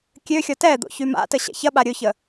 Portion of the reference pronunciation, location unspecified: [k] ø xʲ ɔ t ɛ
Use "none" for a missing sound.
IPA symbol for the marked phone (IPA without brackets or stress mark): kʲ